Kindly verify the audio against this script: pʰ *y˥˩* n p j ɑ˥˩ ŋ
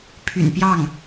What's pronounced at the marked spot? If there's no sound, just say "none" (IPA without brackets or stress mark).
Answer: y̰˨˩